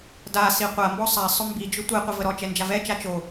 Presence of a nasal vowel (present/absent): absent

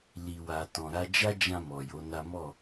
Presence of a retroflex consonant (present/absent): absent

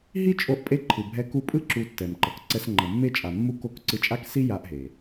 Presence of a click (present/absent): present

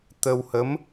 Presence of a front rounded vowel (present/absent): absent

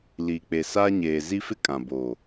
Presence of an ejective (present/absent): present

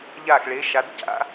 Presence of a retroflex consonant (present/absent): present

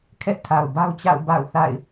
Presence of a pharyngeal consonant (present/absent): absent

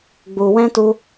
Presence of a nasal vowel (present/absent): present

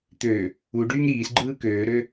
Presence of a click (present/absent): present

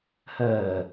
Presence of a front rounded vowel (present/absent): present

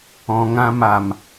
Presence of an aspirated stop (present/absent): absent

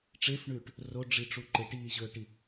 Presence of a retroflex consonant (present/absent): present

